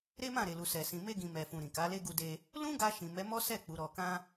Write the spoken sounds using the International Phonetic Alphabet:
ɾ e˦ m ã˦˨ ɾ e˨ l u˨ s ɛ˨ s ĩ˨ m e˧ ɡ ĩ˨ m ɛ˨ f ũ˨ ɾ ĩ˨ k a˨˦ l e˦ ɡ u˧ d e˧ | l ũ˦ ɡ a˧ ʃ ĩ˨ m ɛ˨˦ m ɔ˦ s ɛ˦˨ k͡p u˨˦ ɾ ɔ˧ k ã˦

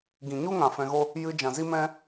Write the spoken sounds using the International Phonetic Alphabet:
ɡ ĩ˨ ɲ u˦ ŋ ã˨ f ɛ̃˧ ɣ o˦ | j ɨ˧ d͡ʒ ã˨ z i˦ m ɛ̃˦

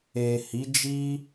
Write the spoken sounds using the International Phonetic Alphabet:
e˨ h i˨˦ d͡ʒ i˦

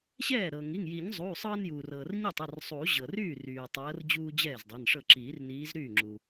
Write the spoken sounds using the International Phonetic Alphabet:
ɕ ɛː˥˩ ɾ ɤ˩ ŋ i˩˧˩ ŋ j i˨˩˦ ɲ zˤ uː˩˧˩ sˤ ɤː˦ n j uː˩ r ɤː˩ r ɲ i˥˩ tˤ ɤ˩˧˩ r sˤ uː˨˩˦ ʑ ɤ˩ r yː˥˩ r yː˩ tˤ ɤː˨˦ r d͡ʑ uː˦ d͡ʑ ɛː˥˩ z dˤ ɛ˩˧˩ n ʂ ɤ˥˩ ǁ iː˨˩˦ r n iː˨˦ z ɾ yː˥˩ ŋ͡ǁ u˩

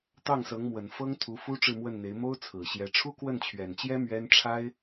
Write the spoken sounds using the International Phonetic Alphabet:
t̪ ɑ˥˩ ŋ s ɤ˧˥ ŋ m w ə˨˩ n f ɤ˥ ŋ t̪ʰ u˧˥ f u˥ ʈ͡ʂ ɻ̩˥˧ m w ə˥˩ n n̪ e˧˥ ɪ̯ m o˥ ʊ̯ t͡sʰ ɹ̩˨˩ ɕ j ɛ˧˥ ʈ͡ʂʰ u˥ k w ə˥˩ n t͡ɕʰ ɥ ɛ˨˩ n t͡ɕ j ɛ˥ m ɥ ɛ˥ n ʈ͡ʂʰ a˥ ɪ̯

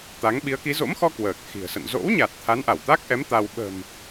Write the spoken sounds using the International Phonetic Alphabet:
t̪ a˨˦ ŋ ɓ i˨˦ ə̯ k i˨˦ z o̰˧˥ m x ɔ˧ k w əː˨˩ k̚ x i̤˨˩ ə̯ s ə̰˧˨ n z o̰˧˥ w ɲ a˨˩ t̚ t̪ʰ a˨˦ n ʔ a˧˩ w t̪ a˦˥ k̚ ʔ ɛ˨˦ m t̪ a˧ w ɓ ə̤˨˩ m

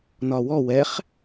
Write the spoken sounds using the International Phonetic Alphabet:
n ɒ w ɔ w ɛ χ

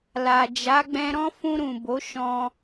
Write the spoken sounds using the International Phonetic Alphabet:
l a˨ d͡ʒ a˨˦ ɡ͡b ɛ̃˧ ɾ ɔ̃˦ f ũ˧ ɾ ũ˨ b o˨˦ ʃ ɔ̃˧

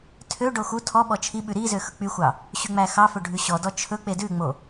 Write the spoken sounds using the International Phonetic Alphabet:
tʰ ø ɖ o x u tʰ ɔ ɓ ɔ t͡ʃʰ i ɓ ʉ ɾ i z ø x ɵ k͡p y xʷ ɑ | ɕ y ŋ͡m æ x ɑ f ɵ ɖʱ ʉ ɕ ɔ d ɔ t͡ʃʰ ɵ k͡p e d ʉ ŋ͡m o

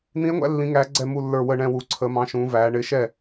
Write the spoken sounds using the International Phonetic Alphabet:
n̪ ĩ˧˥ e̯ ŋʷ æ̰˧˥ lː ĩ˧˥ ŋ æː˧˥ ɡ͡ǀ ɛ˥˧ m u˥˧ lː ə˞˥˧ w ə˥˧ ɳ ɛ̃˥˧ w u˧˥ ǀʰ əː˧˥ m ɑ̃˧˥ ʃ ũː˧˥ v æː˧˥ ɳ ɪː˧˥ ʃ ɛ˥˧

